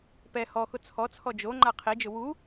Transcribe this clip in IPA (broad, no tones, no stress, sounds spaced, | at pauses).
p ɛ h ɔ x ʊ t͡sʰ ɔ t͡sʰ ɔ d͡ʒ o ŋ͡ǃ a qʰ i d͡ʒ ʊ w u